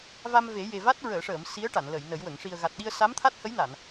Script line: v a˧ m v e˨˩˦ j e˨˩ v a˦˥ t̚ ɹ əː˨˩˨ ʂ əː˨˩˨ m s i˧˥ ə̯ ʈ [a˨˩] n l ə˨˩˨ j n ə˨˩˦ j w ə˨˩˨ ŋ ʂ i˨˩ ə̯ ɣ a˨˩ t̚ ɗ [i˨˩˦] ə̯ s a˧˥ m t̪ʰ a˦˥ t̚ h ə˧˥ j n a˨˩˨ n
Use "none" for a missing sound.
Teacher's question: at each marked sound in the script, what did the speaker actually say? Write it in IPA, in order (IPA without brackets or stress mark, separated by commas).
a˨˩˨, i˧